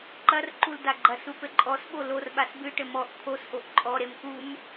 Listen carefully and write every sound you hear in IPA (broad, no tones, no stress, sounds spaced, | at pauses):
ǃ ɐ r ǃ u l d a ɡ͡ǃ ɐ s u p ɘ ǃʼ ɔ s ɓ o l o r ɓ a s b ɨ ʈ ɘ m ɔ ʔ t̪ʰ o s ʔ o ʔ ǃʼ ɔ ɾ e m k u m